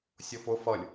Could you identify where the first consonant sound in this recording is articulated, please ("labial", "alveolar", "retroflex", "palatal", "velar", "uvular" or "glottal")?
alveolar